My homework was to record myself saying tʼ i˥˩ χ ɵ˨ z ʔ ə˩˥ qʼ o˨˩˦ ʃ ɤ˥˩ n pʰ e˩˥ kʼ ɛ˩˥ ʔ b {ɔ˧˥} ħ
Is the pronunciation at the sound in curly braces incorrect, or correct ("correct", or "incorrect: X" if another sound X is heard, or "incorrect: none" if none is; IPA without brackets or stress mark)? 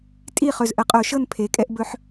incorrect: ɵ˧˥